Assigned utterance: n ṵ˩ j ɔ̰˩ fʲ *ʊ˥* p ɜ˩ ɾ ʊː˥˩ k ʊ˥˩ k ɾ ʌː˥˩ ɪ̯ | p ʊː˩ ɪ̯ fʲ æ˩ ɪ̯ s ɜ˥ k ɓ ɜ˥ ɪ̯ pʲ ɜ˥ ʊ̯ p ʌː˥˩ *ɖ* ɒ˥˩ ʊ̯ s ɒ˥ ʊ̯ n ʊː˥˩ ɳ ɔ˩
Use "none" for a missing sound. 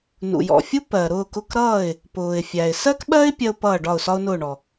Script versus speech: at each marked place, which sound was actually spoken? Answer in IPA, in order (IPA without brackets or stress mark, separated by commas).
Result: u˥, ɖ